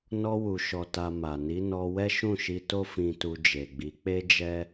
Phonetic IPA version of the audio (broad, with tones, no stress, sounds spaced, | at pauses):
n ɔ˧ w u˨ ʃ ɔ˨ t a˨ m a˨ n i˨˦ n ɔ˧ w ɛ˦ ʃ ũ˦˨ ʃ i˧ t o˦ f ĩ˧ t u˧ d͡ʒ e˨ ɡ͡b i˨˦ k͡p e˦ d͡ʒ ɛ˦